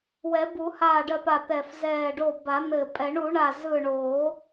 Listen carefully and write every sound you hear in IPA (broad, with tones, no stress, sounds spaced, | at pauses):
w ɛ˨˩˦ b u˨˩˦ h aː˧˩ ɖ ɜ˧˩ p a˧˩ t̪ ɛ˧˩ f z ɛː˧˩ ɖ o˧˩ b a˨˩˦ n̪ ɘ˧˩ pʼ ɛ˨˩˦ ɳ u˨˩˦ ɳ a˧˩ z ɯ˧˩ ɳ oː˨˩˦